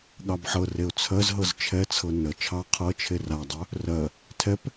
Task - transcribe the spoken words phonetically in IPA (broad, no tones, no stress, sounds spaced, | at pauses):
ɠ ɑ b ħ ɤ r e ʊ̯ t͡sʰ ɜ z ɦ ɤ z t͡ʃʰ ɛ t͡sʰ ɤ n ə t͡ʃʰ ɑ qʰ ɤ t͡ʃʰ e r a dˤ œ | r ɜ | tʰ ɛ p